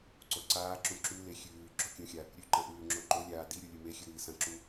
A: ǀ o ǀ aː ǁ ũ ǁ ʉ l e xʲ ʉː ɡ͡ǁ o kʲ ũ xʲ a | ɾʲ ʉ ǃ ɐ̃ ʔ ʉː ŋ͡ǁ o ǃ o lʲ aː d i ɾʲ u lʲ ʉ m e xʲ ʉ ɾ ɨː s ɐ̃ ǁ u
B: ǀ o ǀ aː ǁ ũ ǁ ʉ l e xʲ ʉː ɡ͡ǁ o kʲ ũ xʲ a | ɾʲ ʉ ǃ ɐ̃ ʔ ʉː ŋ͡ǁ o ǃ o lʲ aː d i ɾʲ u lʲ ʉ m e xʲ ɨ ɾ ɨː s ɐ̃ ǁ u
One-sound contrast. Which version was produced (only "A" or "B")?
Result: B